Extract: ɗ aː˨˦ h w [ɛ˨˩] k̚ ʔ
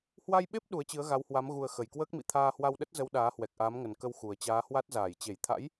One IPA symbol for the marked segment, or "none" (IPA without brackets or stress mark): ɛ˨˩